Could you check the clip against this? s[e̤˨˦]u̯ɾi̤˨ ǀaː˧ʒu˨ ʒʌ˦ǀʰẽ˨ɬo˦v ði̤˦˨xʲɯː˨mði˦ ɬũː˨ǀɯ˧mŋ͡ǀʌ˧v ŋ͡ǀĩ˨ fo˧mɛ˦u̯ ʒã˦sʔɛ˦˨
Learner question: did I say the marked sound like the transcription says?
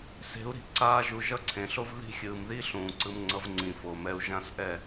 yes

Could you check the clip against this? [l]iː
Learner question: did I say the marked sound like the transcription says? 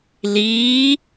yes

